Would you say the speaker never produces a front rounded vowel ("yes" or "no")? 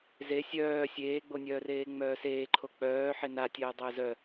no